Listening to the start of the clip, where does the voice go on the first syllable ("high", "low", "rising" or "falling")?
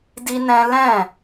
high